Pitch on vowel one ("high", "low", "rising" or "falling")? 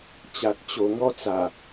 low